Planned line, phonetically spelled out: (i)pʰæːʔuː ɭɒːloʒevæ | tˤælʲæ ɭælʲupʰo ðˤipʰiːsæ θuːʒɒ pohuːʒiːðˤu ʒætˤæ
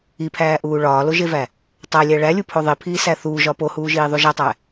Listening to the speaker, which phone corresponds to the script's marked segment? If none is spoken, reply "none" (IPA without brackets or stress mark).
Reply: i